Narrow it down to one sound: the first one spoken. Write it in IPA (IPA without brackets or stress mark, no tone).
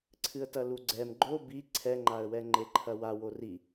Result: ǀʰ